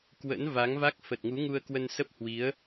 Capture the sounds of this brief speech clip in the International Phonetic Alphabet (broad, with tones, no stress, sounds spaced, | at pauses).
k w ə̰˧˥ n v a˨˦ ŋ v a˦˥ k̚ f ə˨˩ t̚ ŋ u˨˦ ŋ u˧ ə̯ k w ə˧ n s ə˦˥ p̚ h w i˨˦ ə̯